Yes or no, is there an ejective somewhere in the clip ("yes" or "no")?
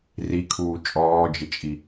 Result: yes